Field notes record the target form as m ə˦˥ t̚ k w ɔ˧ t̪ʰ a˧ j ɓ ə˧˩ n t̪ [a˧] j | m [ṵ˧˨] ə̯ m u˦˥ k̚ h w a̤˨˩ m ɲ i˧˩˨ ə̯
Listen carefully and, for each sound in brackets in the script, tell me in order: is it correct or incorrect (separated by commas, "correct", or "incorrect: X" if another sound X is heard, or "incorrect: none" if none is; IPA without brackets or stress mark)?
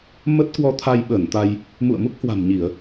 correct, correct